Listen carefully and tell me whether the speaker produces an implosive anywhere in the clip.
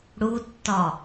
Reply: no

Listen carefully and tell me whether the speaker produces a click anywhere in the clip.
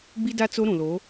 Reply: no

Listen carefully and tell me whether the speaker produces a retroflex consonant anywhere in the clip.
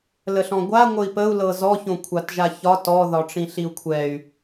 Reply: yes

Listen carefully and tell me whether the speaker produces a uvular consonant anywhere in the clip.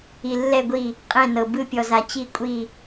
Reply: yes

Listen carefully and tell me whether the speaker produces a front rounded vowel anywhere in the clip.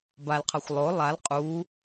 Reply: no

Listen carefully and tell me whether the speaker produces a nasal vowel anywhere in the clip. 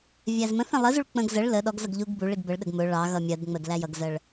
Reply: yes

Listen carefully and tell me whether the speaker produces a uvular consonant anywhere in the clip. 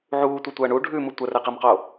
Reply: yes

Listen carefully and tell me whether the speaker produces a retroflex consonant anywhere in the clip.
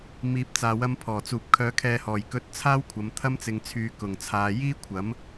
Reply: no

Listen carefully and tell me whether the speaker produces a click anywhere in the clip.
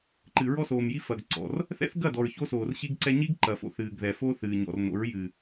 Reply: yes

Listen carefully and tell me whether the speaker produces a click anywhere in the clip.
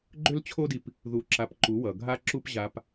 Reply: yes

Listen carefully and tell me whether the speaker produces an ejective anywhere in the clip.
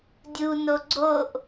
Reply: no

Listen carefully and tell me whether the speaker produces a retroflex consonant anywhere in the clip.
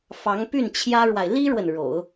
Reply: yes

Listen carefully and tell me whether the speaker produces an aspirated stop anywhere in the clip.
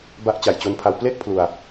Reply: yes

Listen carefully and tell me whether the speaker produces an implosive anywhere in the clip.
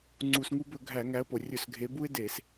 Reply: no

